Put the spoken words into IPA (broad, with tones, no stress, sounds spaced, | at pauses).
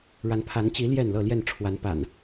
ɻ a˨˦ n pʰ a˨˦ n t͡ɕ i˨˦ l j ɛ˥˨ n l ɤ˥˨ l j ɛ˥˨ n ʈ͡ʂʰ w a˨˦ n p a̰˨˩ n